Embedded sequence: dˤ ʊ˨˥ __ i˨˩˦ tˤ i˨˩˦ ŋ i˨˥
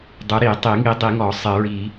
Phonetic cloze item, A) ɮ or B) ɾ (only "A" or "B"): B